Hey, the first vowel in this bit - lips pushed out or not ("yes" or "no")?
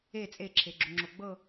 no